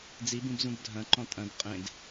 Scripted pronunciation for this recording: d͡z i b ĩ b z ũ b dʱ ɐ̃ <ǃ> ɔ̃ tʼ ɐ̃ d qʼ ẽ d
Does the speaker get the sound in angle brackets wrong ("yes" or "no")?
no